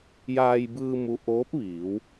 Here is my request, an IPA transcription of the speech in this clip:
jaː˧jbɯː˧ mu˧˥ ʔoː˧˥p̚ʋiː˩˧w

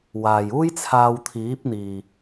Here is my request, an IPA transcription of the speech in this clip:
waː˨juː˥jt͡sʰaː˧w t̪ʰiː˨˥p̚n̪iː˨

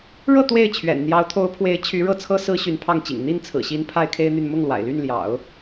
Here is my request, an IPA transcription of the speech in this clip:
ɻɤ˥˧ t̪we˥˩ɪ̯ t͡ɕʰɥɛ̰˨˩n n̪jɑ˧˥ʊ̯t̪ʰo˧˥ʊ̯pʰwe˧˥ɪ̯ t͡ɕʰy˧˥ɻɤ˥˩t͡sʰɤ˥ sɹ̩˥ɕy˧˥npʰɑ˥˩ŋt͡ɕḭ˨˩ŋ n̪i˥˩nt͡sʰɹ̩˨˩ɕi˧˥n pʰa˥ɪ̯kʰe˥ɪ̯n̪y˥˧n mʊ˥˩ŋlwa̰˨˩ɪ̯ ly˥˩nljɑ̰˨˩˦ʊ̯

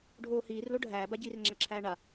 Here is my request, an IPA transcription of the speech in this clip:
ɖʱoːhiːrlo ɖʱæːbaɟiːr ŋ͡ǁæǁʰæːɳa

